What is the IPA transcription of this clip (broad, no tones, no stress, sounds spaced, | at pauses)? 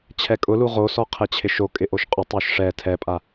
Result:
t͡ɕʰ ɛ kʼ ʊ l u ʁ o s ɔ qʰ ɛ t͡ɕʰ ɪ ʃ o kʼ ɪ ʔ o ʃ qʼ ʊ tˤ o ʃ ʂ ɛ tʰ ɛ pʼ a